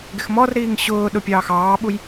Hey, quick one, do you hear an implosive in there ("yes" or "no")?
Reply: yes